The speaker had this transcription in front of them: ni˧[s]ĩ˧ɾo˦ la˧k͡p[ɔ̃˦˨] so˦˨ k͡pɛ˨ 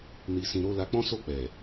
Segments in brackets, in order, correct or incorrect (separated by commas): correct, incorrect